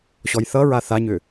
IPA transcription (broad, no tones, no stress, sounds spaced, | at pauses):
ɕ ɔ j θ ʌ ɹ a θ a ɲ ʏ